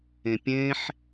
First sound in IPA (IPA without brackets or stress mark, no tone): ẽ